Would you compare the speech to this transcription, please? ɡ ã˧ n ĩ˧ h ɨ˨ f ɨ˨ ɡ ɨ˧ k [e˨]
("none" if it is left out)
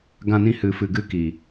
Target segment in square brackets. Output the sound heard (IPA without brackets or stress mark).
i˨